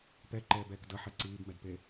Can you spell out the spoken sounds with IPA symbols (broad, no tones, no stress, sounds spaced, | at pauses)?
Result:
p ɛ ǃ ɛː b ɛː k d ʌ ħ ɛ ǀ iː b m ɛ d p e